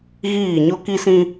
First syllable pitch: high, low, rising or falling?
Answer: falling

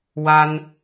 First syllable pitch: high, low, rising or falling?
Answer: high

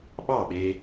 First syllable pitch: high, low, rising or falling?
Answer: falling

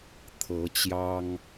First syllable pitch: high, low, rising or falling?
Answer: rising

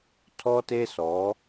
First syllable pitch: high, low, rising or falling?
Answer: high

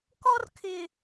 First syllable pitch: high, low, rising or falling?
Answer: high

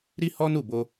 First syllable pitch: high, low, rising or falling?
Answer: high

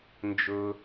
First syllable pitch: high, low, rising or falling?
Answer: low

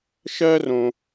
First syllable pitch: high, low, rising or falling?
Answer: high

